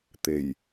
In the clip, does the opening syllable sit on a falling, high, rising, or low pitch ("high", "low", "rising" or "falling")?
low